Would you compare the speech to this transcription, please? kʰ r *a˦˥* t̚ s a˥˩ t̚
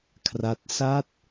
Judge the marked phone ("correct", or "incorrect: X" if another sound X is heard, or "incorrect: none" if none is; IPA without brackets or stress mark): correct